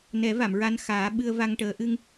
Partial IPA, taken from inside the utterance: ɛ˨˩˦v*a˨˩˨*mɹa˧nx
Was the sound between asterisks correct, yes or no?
yes